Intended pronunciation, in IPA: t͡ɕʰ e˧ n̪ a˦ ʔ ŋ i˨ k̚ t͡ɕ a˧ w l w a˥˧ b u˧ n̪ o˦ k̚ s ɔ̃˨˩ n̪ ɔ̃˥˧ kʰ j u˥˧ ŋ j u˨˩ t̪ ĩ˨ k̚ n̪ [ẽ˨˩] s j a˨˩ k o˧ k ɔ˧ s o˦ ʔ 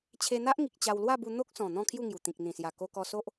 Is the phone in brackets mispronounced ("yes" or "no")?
yes